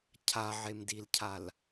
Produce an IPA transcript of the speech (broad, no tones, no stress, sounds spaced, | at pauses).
cʰ a ʕ e m d i l cʰ a l